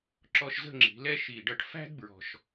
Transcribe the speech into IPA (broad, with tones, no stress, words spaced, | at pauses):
ǁɔ˧ʃzə̤˥˧ŋ͡ǁi̤˩˧lɛ˥˧ ʃi˧˩ ɖʌ˧ʈfæ̤˥d bɹɔ̤˧ʃ